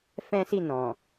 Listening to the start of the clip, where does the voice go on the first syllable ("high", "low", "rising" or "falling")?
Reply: high